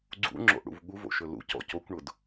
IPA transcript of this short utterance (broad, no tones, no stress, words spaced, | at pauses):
ɡ͡ǀṵŋ͡ǁo̰ʔɽṵv ɠuvo̰ ʃɵlṵ cɔ̰cokʷɳʊd